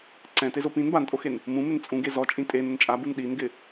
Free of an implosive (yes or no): no